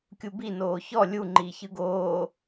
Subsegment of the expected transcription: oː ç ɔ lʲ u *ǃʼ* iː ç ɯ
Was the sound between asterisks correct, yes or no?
no